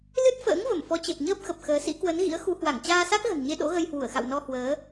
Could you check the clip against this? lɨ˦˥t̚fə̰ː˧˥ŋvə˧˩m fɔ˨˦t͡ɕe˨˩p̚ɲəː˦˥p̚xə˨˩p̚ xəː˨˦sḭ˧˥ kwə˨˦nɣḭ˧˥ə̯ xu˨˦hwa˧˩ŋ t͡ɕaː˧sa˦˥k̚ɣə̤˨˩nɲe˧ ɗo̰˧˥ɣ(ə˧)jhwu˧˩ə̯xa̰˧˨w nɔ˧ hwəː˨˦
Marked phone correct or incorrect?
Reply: correct